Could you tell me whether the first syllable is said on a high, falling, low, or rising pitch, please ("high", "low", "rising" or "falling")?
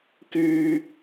low